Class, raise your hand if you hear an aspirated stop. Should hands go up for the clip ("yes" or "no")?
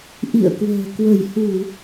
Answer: no